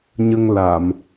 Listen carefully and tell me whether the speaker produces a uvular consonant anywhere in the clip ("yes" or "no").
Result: no